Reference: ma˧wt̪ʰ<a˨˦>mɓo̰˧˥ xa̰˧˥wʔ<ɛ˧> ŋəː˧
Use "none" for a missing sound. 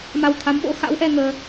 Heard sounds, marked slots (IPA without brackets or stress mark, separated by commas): a˨˦, ɛ˧